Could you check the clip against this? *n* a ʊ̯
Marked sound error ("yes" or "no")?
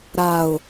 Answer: yes